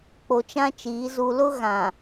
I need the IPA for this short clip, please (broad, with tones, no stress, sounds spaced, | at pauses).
k͡p o˨ t͡ʃ ã˦ t͡ʃ iː˨˦ z u˨ l ʊ˦ ɣ ã˨